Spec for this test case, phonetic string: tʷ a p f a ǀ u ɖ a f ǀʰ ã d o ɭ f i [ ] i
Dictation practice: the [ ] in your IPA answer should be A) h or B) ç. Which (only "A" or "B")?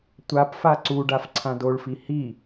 A